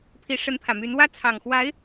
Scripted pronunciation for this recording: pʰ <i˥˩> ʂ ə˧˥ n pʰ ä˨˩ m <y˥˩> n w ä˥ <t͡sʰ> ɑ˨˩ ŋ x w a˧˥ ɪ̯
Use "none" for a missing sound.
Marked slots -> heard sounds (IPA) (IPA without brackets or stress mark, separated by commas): i˧˥, y˧˥, t͡sʰ